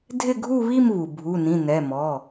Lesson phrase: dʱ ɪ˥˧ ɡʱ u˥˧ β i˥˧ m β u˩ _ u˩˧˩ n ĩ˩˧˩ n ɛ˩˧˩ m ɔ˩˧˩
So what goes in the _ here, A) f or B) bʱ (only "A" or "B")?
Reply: B